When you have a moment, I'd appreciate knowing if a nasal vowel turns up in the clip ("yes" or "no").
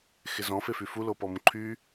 yes